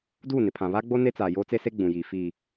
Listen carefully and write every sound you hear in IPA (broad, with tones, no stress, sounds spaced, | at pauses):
d uː˦˨ n ɪ˨ pʰ ã˨ β a˦ ɡ͡b o˦ n e˦ t͡s aː˨ j oː˦ t͡s e˦ s e˦ ɡ͡b ũ˨ j iː˨ f iː˨